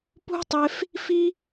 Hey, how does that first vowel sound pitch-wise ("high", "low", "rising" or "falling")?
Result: high